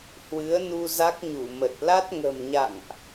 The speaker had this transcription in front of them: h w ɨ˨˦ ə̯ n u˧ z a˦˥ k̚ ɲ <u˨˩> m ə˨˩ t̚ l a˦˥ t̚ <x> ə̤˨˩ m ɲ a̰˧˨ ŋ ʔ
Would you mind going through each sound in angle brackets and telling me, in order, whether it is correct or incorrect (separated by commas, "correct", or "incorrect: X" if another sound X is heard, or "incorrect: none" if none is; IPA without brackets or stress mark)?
incorrect: u˧˩, incorrect: ŋ